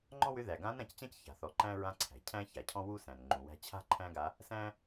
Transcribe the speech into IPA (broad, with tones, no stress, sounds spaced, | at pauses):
ŋ͡ǃ ɔ̃˥ w ʏ˧˥ ð æ˩ ɡ ã˧˥ n ɾ ã˩˧ c t͡ɕ ã˥ c ç a̤˩ θ ɔ˩˧ ǃ æ̃˥ ɹ ã˧ ǀʰ æ̤˩ cʰ æ̃˥ ç a˩ cʰ ɔ̃˥ w u˥ s æ̃˩ n ŋ͡ǃ ũ˩ w æ̤˧ t͡ɕʰ a̤˥ ǃʰ æ̃˥ ɡ a˧˥ | s æ̃˥